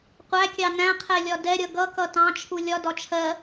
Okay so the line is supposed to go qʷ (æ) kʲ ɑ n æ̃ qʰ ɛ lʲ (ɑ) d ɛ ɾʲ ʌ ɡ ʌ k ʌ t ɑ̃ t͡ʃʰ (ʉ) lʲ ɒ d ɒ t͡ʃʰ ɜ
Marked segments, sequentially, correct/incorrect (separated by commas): correct, incorrect, incorrect